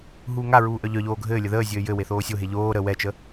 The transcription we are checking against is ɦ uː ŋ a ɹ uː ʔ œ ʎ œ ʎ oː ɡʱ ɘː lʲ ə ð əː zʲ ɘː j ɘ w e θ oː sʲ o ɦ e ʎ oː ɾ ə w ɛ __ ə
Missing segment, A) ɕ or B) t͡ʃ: B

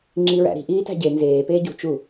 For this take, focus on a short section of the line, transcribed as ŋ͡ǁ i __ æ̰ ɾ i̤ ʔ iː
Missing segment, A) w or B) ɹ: B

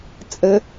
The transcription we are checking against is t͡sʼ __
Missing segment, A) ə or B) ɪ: A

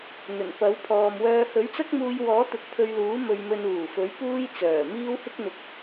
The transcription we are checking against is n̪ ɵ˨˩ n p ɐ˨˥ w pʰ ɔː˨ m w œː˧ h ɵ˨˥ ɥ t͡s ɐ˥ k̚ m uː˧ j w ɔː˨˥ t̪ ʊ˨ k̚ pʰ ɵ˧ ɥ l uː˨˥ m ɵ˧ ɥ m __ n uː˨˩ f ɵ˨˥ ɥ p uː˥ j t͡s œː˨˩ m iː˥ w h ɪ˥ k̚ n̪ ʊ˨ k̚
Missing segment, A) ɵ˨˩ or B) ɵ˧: B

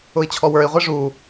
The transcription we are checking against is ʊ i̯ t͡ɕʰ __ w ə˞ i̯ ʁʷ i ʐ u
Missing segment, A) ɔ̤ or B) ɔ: B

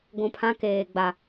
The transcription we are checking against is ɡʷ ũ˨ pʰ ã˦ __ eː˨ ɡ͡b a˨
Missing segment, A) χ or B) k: B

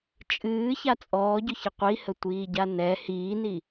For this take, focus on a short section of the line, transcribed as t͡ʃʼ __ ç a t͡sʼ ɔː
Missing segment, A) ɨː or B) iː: A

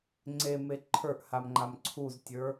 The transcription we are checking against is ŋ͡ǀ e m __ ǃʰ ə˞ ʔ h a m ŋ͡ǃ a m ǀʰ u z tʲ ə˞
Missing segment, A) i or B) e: B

